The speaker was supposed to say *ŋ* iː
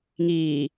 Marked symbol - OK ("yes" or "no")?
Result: yes